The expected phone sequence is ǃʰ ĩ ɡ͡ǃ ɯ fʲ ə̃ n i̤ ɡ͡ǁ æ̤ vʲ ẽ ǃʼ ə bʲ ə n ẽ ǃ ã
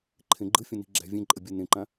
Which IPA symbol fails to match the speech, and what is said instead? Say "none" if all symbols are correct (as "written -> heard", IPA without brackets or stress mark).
ĩ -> ẽ